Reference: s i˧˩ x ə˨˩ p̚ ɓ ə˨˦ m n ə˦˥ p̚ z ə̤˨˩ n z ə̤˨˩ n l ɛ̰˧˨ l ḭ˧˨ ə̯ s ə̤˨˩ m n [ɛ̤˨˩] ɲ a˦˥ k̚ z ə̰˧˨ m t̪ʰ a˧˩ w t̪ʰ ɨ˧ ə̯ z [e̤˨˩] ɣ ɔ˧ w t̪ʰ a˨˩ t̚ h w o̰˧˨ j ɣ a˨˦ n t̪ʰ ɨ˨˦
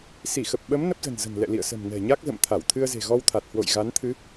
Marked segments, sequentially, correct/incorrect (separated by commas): correct, correct